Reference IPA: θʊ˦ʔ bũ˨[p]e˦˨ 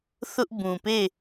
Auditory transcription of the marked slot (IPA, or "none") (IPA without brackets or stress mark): p